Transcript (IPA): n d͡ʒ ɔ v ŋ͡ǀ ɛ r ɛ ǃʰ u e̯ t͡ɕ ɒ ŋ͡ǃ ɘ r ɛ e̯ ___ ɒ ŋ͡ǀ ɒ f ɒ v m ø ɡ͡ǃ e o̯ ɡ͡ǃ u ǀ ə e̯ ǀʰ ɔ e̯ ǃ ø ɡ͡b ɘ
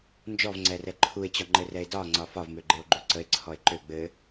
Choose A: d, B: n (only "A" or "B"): A